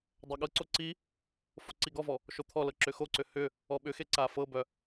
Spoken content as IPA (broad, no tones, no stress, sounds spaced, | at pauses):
dˤ œ ɠ ɤ ǀ o ǀ i | f o ǀ i ɡ ɔ v ɔ | ʃ o t̪ʰ ɔ l ɤ ǁ ʏ x o ǀ ʏ h ʏ | ɔ ɓ ʏ x e ǀ a f ɤ b œ